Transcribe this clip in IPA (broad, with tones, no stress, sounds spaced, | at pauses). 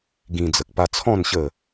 ɡ ĩ˧ d͡z ə˨ k̚ p a˧ t͡sʰ ɔ̃˥˧ n ɕ ə˥˧